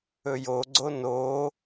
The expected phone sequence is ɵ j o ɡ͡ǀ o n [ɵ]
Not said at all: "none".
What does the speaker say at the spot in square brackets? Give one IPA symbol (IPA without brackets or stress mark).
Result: o